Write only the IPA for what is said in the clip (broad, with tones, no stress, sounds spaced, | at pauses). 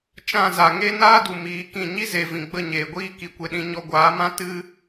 t͡ʃ ã˦˨ z a˨ ŋ e˦ n aː˦ d u˨ m iː˨˦ k ĩ˦˨ ɲ i˦ z e˨ v ĩ˨ ɡ͡b ə˦˨ ɲ eː˨ ɡʷ iː˦ k i˨ kʷ e˧ ɗ ĩ˧ ɲ ɔ˧ ɡʷ aː˨˦ m ã˦ t ɨ˦